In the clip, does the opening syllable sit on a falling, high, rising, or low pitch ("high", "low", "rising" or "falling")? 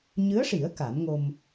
rising